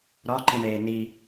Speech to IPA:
ɾ ɒ ǃ ĩ ɳ eː n i

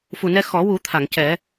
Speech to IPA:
f u˨˩ n ɛ˧ x ɔ˨˩˦ w u˨˩˦ t̪ʰ a˨˩˨ ŋ c ɛ˨˩˦

